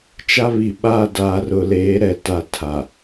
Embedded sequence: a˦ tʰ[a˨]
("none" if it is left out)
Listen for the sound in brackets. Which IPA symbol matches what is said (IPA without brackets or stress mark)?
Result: a˨